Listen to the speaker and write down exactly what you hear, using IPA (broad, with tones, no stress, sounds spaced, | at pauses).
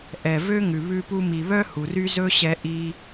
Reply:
ʔ ɛ˨ v ø˦ ŋ ʉ˨ β ʉ˧ p u˧ m i˨ β œ˦ h u˨ r y˦ z ɵ˦ ɕ ɛ˧ ʔ i˧